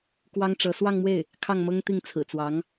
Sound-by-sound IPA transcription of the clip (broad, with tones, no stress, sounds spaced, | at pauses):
k w ɑ˥ ŋ ʈ͡ʂ ɤ˧˥ s w ɑ˥˧ ŋ m w e˥˩ ɪ̯ | kʰ ɑ˥˩ ŋ m ɤ˥ ŋ t̪ i˥˩ ŋ t͡sʰ ɹ̩˨˩ t͡s w ɑ˧˥ ŋ